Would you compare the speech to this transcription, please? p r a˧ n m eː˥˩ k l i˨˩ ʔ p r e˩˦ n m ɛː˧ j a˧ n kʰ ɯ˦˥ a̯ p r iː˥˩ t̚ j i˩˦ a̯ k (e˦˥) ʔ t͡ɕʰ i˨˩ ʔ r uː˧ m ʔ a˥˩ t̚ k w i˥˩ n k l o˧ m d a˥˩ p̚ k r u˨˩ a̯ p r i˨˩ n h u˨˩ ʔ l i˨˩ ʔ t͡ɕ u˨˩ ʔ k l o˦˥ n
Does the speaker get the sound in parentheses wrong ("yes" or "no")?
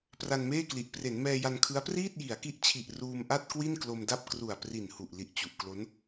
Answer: yes